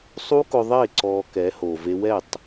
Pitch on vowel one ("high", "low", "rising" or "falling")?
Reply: high